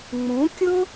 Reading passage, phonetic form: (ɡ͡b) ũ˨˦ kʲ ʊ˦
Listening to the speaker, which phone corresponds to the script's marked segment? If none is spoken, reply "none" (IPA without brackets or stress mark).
ŋ͡m